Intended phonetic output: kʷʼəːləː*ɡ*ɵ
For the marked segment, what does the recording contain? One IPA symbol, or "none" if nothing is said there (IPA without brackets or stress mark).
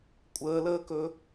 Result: k